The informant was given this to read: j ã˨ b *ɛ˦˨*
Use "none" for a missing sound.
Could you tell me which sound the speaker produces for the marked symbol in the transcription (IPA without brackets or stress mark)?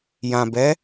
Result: ɛ˨˦